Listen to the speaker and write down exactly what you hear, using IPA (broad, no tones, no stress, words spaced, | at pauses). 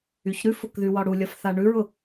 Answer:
yçɾʉfʊk ðywɒɽulʲɒf θaɳʉɹʊ